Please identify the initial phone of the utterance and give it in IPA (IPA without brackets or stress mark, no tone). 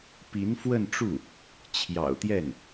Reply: p